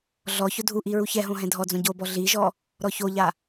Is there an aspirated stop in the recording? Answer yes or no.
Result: no